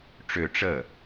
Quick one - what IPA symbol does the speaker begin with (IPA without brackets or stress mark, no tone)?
ʈ͡ʂ